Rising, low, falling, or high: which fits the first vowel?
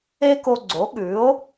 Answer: high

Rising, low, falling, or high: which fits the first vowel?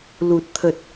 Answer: low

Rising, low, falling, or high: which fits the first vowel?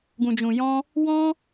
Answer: low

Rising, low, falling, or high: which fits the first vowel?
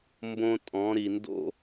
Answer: high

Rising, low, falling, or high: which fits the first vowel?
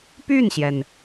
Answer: falling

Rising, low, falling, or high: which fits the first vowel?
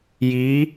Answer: rising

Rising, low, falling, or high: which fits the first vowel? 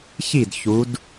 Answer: falling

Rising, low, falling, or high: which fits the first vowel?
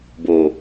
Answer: low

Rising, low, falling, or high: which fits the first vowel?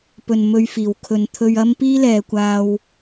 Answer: low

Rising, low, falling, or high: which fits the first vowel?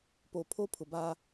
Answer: low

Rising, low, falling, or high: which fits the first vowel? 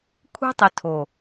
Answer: high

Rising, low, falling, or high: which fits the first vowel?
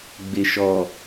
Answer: low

